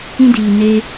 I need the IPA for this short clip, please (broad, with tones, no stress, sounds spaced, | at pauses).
ĩ˦ d iː˨ n e˧